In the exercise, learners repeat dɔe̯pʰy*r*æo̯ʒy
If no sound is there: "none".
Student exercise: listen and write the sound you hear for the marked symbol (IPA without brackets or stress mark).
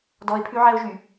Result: ʕ